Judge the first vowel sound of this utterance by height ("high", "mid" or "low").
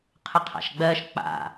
high